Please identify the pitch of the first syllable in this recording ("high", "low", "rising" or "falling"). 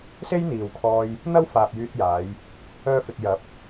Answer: high